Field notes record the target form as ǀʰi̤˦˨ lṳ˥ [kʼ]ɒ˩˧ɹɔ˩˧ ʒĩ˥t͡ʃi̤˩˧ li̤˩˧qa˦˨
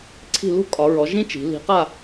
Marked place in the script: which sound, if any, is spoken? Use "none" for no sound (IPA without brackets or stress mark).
kʼ